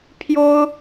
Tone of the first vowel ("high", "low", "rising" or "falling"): high